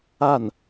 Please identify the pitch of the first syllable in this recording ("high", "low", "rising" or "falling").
falling